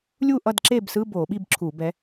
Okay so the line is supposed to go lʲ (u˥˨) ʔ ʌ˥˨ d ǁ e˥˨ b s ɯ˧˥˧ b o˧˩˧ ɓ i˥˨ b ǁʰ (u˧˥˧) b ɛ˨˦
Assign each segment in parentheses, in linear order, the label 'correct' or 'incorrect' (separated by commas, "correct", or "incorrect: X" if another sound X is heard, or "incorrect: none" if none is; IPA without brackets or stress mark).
correct, incorrect: u˧˩˧